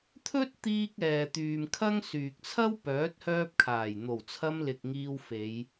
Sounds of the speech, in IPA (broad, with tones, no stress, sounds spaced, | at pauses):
t̪ʰ ɵ˥ t̚ t̪ iː˧ k̚ ɛː˨ t̪ yː˨ m kʰ ɐ˥ ŋ s yː˨ k̚ t͡sʰ ɐ˥ w p œː˨˥ t̚ h œː˧ p̚ kʰ aː˨˩ j n̪ o˨˩ w t͡sʰ ɐ˧ m l ɪ˨ k̚ ŋ iː˧ w f e˨˧ j